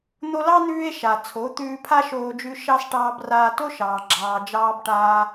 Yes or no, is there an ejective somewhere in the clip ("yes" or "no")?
no